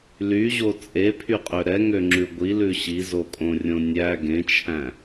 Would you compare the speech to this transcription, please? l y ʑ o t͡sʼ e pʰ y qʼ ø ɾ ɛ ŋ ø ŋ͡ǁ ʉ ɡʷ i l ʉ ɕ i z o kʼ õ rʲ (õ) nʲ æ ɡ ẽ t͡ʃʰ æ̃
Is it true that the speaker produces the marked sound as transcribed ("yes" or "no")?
yes